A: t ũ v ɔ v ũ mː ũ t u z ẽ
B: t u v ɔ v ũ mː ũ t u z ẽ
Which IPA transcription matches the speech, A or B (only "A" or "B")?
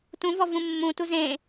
A